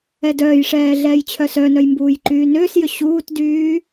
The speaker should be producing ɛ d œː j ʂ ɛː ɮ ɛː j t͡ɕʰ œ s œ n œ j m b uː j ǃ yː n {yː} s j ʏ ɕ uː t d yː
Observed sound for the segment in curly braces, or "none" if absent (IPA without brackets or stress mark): ʏː